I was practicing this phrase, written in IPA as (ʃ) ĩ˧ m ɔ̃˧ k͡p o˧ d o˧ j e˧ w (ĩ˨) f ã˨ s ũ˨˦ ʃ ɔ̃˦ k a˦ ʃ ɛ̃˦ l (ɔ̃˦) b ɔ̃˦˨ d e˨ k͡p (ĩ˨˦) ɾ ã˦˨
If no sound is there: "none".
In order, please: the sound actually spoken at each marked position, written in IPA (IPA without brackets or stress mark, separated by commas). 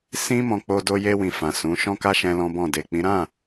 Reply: s, ĩ˨, ɔ̃˦, ĩ˨˦